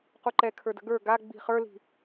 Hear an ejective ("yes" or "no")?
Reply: no